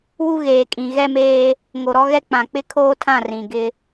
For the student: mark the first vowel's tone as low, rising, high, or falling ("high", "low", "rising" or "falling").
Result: high